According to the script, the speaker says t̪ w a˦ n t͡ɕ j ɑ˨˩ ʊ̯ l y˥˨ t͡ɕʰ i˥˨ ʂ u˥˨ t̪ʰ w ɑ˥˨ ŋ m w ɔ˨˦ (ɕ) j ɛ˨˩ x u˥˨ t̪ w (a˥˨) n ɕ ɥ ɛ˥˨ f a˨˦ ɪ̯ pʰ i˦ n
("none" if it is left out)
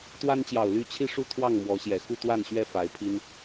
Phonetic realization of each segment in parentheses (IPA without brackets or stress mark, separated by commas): ɕ, a˥˨